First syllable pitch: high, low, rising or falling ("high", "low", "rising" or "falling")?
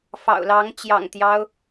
low